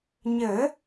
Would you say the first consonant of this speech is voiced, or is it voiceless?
voiced